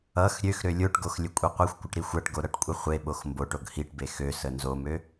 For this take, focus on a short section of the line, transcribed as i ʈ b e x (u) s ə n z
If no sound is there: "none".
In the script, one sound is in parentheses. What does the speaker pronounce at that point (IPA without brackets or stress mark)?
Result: ø